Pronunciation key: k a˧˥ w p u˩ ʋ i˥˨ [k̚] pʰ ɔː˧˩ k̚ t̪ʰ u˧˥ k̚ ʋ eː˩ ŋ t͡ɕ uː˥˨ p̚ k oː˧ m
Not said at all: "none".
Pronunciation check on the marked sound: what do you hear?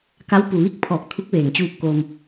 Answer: k̚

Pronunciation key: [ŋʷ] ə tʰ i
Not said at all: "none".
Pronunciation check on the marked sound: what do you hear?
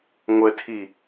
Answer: ŋʷ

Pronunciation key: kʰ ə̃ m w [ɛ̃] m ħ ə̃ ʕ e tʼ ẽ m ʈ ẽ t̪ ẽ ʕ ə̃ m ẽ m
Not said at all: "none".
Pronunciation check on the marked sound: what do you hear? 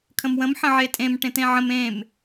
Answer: ə̃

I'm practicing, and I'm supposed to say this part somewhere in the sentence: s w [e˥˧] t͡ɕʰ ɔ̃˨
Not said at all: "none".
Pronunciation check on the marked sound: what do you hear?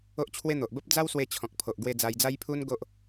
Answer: e˧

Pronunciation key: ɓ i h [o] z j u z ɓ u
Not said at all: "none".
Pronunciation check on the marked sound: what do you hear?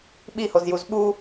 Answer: o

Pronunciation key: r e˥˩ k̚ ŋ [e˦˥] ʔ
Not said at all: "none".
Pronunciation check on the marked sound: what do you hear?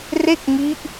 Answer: i˦˥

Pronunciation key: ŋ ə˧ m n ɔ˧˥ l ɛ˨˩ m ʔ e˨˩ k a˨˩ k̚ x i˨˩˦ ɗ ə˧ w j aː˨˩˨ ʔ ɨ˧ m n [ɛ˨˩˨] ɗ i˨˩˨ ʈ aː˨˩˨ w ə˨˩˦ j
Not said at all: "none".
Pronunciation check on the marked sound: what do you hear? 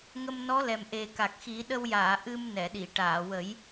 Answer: ɛ˨˩˨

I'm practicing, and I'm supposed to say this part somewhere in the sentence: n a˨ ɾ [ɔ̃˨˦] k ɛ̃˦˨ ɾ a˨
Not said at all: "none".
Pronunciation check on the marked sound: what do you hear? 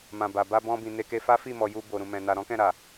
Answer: ɔ̃˨˦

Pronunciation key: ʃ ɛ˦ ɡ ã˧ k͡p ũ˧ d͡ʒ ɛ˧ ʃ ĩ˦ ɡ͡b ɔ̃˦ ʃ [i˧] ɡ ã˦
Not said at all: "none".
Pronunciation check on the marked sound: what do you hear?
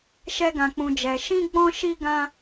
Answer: i˦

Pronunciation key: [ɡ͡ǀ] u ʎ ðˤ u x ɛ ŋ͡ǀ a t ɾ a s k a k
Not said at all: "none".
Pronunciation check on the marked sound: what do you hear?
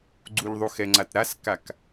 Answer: ɡ͡ǀ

